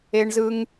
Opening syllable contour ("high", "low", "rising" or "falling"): high